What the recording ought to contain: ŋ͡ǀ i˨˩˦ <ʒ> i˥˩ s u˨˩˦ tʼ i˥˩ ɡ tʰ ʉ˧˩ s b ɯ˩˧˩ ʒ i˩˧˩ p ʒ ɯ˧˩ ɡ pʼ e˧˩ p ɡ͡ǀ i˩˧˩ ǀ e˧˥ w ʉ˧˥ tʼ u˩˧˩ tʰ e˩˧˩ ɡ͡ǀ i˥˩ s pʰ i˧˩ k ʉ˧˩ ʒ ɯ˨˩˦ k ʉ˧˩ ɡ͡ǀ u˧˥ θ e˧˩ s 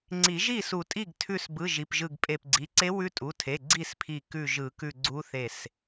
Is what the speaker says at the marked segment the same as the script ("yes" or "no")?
yes